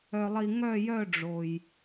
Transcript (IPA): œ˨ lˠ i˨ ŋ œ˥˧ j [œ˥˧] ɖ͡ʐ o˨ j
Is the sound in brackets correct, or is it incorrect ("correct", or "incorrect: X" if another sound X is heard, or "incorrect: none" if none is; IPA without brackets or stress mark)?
correct